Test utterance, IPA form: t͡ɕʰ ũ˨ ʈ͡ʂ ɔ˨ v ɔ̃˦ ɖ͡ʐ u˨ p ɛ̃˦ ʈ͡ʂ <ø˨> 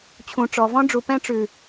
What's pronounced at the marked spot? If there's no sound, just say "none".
ʉ˨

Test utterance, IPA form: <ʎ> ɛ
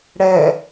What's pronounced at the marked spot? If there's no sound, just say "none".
ɽ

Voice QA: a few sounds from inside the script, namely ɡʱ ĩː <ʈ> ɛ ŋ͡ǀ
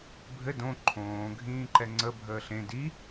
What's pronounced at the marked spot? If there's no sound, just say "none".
ǃ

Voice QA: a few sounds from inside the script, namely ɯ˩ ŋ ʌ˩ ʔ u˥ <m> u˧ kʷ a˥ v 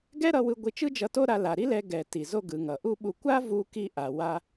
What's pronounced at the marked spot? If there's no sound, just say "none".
ɓ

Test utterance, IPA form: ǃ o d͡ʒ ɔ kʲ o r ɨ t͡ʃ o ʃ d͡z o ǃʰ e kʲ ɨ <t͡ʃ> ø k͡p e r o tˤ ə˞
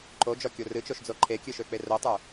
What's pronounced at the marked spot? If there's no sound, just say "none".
ʃ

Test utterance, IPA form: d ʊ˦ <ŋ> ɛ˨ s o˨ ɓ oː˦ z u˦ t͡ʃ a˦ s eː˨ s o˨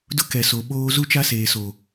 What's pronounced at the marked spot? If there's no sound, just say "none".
k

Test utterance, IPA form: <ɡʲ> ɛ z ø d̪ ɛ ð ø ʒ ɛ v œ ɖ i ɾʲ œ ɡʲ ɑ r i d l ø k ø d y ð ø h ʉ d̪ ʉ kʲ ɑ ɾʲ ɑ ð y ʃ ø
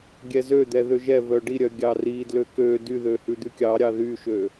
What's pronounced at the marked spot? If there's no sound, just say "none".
ɡʲ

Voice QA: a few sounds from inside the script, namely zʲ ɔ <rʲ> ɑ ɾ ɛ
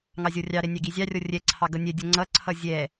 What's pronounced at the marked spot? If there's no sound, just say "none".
rʲ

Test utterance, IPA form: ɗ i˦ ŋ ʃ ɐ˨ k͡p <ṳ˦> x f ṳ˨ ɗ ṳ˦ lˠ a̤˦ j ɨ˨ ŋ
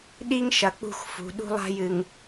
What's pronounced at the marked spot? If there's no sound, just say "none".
ṳ˦˨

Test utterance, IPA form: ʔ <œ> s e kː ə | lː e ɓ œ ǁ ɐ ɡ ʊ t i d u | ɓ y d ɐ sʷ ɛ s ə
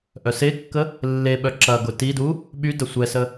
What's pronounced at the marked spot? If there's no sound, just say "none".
œ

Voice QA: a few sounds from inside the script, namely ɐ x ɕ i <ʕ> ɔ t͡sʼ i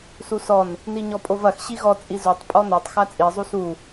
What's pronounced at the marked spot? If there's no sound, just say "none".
ɣ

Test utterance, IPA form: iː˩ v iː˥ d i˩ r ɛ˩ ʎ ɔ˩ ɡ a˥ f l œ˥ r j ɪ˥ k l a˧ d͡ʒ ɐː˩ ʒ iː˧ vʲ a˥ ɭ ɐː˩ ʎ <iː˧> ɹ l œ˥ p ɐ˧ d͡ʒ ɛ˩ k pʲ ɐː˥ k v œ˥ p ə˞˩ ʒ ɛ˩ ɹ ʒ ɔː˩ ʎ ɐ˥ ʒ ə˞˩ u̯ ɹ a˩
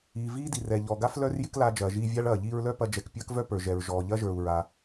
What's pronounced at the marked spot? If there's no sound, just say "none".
iː˧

